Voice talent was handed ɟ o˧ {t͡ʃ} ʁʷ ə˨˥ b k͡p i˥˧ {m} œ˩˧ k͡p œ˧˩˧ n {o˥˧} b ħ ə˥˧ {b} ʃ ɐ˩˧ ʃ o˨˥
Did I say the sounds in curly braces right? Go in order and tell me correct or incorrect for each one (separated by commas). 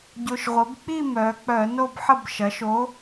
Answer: incorrect, correct, correct, correct